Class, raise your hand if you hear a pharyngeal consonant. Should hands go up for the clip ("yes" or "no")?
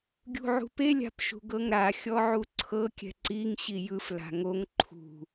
yes